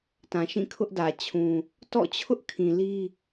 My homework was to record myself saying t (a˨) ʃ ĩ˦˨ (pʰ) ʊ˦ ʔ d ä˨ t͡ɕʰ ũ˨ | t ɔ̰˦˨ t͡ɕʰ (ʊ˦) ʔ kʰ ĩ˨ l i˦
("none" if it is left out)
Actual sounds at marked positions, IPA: ã˨, kʰ, ʊ˦

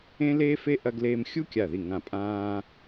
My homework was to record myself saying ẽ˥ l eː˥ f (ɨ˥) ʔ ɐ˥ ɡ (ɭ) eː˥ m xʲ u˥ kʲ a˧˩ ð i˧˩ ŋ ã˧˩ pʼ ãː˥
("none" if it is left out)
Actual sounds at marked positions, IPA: e˥, l

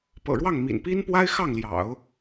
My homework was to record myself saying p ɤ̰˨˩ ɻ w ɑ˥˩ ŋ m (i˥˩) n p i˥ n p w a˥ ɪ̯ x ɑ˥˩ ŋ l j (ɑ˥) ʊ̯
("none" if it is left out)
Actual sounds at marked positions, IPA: ḭ˨˩, ɑ̰˨˩˦

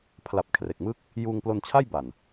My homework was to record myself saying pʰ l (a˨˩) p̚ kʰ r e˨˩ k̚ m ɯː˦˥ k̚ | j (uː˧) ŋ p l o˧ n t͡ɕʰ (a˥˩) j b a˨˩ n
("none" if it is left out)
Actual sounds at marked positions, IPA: a˨˩, uː˧, a˥˩

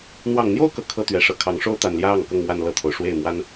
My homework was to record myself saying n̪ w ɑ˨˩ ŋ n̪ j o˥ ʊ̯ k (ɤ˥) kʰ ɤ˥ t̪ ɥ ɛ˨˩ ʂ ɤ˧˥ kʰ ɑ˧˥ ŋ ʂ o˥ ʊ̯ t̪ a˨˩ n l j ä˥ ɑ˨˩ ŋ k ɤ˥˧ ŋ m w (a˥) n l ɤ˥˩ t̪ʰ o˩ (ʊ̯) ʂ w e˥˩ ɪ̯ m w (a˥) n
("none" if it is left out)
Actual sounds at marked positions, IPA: ɤ˨˩, a˥˧, ʊ̯, a˥

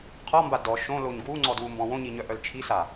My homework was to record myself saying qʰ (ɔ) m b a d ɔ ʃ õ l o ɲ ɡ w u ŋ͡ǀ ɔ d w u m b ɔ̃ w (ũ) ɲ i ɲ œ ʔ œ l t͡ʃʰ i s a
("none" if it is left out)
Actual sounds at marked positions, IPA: ɔ, õ

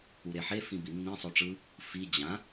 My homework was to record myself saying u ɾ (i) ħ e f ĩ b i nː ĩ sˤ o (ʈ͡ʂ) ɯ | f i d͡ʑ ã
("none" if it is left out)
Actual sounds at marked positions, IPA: e, ʈ͡ʂ

